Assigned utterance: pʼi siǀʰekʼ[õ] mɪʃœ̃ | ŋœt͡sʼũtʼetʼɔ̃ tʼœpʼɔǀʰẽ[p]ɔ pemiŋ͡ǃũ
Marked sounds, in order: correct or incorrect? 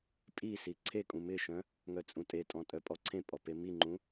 incorrect: ũ, incorrect: pʼ

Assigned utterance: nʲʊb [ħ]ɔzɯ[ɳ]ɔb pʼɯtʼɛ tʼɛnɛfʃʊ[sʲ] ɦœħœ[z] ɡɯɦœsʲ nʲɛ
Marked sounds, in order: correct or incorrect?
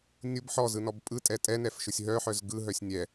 correct, incorrect: n, correct, correct

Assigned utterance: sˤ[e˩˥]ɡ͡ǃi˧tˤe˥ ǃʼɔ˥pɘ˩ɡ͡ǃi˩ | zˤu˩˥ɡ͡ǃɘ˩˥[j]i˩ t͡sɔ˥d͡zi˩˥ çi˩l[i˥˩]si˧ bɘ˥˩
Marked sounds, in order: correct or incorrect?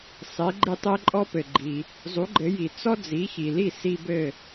correct, correct, correct

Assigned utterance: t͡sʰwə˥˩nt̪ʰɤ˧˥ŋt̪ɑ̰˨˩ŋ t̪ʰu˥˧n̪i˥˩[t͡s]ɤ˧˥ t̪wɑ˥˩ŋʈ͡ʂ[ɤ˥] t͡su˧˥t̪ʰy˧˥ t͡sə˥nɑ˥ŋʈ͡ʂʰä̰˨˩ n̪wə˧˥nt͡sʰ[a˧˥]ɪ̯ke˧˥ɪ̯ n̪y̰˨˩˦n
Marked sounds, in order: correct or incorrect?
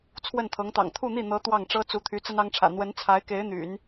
incorrect: n̪, correct, correct

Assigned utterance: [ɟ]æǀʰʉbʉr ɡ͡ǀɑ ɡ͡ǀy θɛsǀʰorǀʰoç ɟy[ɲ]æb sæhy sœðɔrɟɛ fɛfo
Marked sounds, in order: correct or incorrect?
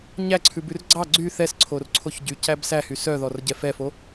incorrect: ɲ, incorrect: c

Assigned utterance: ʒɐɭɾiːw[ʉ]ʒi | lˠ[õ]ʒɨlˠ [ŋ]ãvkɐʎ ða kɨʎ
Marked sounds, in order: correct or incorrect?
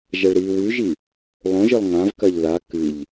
correct, correct, correct

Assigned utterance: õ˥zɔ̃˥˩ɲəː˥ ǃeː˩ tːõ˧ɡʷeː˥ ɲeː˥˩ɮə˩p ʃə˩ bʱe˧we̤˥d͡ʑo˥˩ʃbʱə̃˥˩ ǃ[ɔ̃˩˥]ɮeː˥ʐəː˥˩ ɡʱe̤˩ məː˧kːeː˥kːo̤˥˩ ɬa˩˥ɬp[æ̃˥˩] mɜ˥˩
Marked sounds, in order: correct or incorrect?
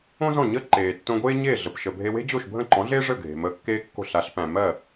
correct, incorrect: æ̃˩

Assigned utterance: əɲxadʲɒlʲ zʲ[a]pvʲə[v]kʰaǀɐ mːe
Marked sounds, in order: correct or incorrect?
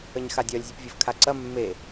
incorrect: ə, correct

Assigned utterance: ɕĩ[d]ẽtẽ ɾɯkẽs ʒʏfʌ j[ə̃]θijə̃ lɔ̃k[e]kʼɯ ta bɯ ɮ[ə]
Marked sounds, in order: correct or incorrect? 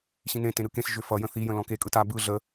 incorrect: n, correct, correct, correct

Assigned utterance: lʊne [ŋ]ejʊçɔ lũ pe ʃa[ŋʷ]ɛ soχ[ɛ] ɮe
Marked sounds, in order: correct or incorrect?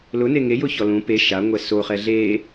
correct, correct, correct

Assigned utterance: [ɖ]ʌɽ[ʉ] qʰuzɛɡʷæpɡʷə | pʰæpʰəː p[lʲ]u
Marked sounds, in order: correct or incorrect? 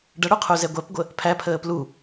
correct, incorrect: u, incorrect: l

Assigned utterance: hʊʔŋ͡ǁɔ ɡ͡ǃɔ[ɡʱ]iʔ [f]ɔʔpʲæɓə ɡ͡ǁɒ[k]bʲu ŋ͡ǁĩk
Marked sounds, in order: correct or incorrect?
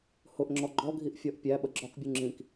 correct, incorrect: fʲ, correct

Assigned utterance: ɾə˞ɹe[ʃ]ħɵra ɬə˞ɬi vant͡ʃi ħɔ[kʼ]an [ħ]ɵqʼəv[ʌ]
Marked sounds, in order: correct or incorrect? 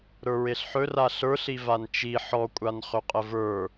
incorrect: ɬ, incorrect: kʷʼ, incorrect: χ, incorrect: ə˞

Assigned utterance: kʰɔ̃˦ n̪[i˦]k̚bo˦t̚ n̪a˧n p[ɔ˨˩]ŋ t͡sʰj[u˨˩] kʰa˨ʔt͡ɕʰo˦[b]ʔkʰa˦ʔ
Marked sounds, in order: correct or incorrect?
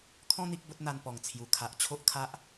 correct, correct, correct, incorrect: none

